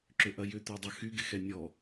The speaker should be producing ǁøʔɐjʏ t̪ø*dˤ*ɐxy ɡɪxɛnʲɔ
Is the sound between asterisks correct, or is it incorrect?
correct